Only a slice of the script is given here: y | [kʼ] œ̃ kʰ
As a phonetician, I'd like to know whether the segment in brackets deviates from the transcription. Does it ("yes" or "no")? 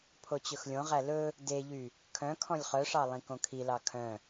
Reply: yes